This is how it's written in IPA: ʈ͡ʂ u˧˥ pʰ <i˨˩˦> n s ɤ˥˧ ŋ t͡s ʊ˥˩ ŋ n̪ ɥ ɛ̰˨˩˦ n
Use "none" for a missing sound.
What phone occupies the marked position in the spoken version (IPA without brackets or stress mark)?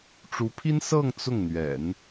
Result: i˥